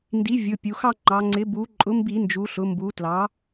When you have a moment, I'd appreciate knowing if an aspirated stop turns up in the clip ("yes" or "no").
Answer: no